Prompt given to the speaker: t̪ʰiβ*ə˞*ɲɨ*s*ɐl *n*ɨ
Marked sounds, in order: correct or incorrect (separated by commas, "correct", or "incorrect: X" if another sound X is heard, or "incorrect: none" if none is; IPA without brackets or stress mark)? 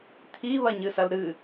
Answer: incorrect: ɐ, correct, incorrect: ɾ